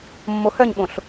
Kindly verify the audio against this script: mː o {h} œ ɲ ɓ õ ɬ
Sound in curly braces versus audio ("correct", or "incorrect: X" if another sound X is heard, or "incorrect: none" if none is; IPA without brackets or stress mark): correct